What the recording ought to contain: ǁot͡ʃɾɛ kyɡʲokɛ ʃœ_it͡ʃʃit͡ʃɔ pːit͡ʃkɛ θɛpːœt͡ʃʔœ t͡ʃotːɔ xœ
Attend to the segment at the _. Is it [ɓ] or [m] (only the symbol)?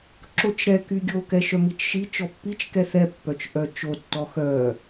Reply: m